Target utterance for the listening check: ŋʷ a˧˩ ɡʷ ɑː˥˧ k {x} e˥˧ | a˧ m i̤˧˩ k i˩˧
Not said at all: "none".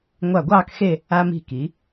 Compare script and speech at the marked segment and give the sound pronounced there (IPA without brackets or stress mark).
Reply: x